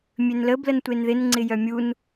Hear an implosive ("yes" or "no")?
no